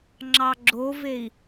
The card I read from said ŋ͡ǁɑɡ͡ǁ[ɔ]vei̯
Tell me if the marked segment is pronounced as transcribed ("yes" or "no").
no